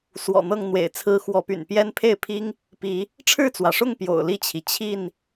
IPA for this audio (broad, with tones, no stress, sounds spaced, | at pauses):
s w ɔ̰˨˩ n̪ ɤ˥˨ ŋ n̪ w ḛ˨˩ ɪ̯ t͡sʰ ɹ̩˦ x w ɔ˨˦ p y̰˨˩ n p j ɛ˦ n pʰ e˥˨ ɪ̯ pʰ i˦ ŋ | p i˨˦ | ʈ͡ʂʰ ɻ̩˥˨ t͡s w ä˩ ʂ ʊ˥˨ ŋ p j o̰˨˩ ʊ̯ l i˥˨ t͡ɕʰ i˩ t͡ɕʰ i˥˨ n